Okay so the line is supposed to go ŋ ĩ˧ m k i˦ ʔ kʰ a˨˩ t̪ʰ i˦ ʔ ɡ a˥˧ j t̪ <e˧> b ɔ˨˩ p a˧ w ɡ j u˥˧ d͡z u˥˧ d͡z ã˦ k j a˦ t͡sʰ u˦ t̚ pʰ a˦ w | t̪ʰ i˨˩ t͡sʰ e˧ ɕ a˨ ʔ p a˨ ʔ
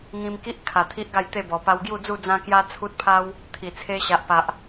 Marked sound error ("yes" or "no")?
yes